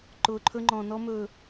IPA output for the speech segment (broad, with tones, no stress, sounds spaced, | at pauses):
ǃ ʊː˨ ǃʰ ɵ˦ ŋ͡ǃ ɔ̃˨ n ɔ˦ m ɵː˨